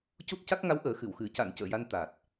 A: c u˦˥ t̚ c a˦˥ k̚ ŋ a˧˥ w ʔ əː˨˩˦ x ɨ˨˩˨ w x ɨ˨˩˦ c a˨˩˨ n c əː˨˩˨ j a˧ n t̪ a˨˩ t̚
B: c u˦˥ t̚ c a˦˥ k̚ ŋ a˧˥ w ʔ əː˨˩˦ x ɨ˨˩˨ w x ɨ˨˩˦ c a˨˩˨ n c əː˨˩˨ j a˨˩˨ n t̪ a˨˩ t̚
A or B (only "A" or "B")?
A